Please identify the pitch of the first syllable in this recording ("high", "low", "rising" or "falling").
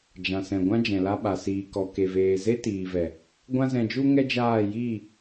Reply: low